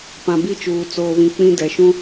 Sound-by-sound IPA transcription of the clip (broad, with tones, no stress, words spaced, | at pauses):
pã˨ bi˦t͡ʃuː˨ t͡soː˨βĩ˨ k͡pĩ˦dɛ˨ ʃũ˦